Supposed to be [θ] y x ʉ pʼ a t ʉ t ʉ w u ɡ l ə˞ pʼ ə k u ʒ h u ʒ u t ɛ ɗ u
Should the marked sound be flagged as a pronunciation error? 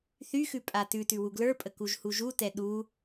no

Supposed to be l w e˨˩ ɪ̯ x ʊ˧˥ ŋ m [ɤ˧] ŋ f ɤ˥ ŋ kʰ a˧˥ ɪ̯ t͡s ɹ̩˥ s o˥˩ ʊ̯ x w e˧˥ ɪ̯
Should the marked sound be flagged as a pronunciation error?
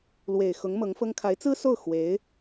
yes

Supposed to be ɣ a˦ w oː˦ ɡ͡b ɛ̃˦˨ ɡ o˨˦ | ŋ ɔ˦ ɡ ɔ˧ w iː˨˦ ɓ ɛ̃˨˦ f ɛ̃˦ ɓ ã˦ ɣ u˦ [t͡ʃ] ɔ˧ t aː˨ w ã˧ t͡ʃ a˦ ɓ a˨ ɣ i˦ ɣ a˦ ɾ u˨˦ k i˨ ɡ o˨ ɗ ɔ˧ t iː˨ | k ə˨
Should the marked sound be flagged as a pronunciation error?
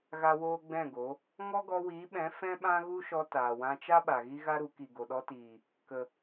yes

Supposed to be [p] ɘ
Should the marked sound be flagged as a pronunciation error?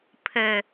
yes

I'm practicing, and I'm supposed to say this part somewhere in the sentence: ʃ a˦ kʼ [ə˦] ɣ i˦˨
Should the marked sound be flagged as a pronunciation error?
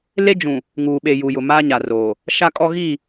yes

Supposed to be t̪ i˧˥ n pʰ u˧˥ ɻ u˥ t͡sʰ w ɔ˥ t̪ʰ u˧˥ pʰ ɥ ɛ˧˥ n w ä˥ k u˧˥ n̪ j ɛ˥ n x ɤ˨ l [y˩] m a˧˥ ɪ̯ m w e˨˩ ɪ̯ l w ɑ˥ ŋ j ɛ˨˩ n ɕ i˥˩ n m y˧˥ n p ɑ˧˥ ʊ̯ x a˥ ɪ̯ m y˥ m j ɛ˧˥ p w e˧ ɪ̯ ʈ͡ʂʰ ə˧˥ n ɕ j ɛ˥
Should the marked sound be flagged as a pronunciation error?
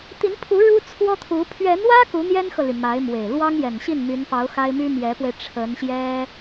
no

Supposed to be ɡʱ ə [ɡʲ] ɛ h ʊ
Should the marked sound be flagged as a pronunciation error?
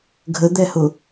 yes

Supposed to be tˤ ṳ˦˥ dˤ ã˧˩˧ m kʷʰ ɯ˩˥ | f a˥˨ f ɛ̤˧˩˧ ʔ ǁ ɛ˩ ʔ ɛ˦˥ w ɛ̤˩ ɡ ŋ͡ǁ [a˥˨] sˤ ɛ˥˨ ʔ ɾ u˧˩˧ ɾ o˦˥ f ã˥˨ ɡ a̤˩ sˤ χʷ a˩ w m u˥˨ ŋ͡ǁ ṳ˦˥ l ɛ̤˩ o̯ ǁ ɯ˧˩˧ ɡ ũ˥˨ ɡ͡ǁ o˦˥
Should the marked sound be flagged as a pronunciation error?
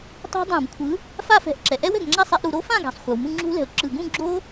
no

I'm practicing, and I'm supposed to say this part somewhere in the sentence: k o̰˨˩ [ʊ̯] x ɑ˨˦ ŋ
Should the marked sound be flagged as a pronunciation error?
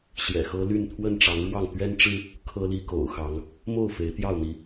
no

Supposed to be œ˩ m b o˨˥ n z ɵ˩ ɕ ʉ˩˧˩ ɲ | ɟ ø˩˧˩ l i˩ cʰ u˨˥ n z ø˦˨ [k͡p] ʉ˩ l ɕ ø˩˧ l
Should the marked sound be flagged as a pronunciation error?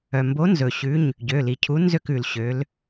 yes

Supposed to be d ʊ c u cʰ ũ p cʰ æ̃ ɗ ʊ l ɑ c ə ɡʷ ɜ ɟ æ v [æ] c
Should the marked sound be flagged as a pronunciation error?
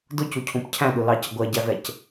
yes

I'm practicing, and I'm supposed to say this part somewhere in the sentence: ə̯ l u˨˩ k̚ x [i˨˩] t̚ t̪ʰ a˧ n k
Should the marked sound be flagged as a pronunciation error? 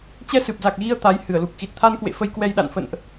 no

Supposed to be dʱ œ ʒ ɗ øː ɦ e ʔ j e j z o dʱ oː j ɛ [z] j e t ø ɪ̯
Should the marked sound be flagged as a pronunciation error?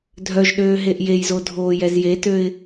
no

